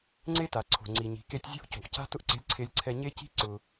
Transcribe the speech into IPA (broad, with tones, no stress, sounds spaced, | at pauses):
ŋ͡ǀ e˥ t a˩ ǀʰ o̤˩ ŋ͡ǀ i˩ ɲ i̤˩ k e˧ tʲ zʲ o̤˥ ʔ c o̤˩ ʔ c a̤˥ t ʊ˥ ʔ ǀ e̤˧ lʲ ǀʰ e˧ lʲ ǀʰ ɛ˧ ɲ e˥ c i̤˥ ǀ ʊ˩